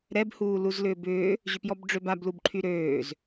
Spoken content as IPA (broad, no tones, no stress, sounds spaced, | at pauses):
ɾ ɛ b h uː l u z l ʏː b ʏː | ʑ ʏ p j ɔ b ɖ͡ʐ ø b a b l u b ǃʰ y ɾ øː z